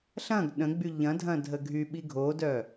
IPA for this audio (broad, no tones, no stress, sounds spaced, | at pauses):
ɬ ɐ̃ ɡ ɗ ə̃ ɡ͡b y ʎ ɐ̃ dʱ ɐ̃ dʱ ə ɡʱ y ɓ i ɡʱ o d œ